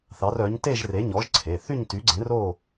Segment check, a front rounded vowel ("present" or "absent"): present